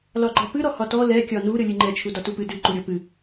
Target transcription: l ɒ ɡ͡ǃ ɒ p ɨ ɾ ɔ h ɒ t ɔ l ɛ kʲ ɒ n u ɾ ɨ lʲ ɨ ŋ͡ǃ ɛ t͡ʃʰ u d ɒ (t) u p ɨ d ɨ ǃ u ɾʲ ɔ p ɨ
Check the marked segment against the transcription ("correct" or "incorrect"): correct